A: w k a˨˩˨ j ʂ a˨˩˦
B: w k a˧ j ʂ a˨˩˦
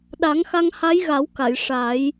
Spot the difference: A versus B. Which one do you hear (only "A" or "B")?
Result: A